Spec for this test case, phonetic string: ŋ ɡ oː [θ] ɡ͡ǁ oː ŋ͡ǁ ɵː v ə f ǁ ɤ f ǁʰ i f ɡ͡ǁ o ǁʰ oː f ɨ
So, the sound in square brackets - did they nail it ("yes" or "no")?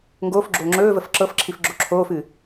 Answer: no